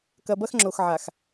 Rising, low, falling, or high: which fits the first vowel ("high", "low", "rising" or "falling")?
low